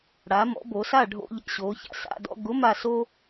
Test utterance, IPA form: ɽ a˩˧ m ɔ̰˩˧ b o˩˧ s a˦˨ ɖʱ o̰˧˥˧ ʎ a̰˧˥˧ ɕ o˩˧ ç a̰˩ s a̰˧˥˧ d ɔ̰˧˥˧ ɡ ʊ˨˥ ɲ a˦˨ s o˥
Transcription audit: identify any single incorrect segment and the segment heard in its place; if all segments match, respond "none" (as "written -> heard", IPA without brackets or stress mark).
ɲ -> m